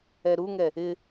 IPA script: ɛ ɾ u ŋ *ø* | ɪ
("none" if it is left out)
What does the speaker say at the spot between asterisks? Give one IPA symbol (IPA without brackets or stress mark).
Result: ɛ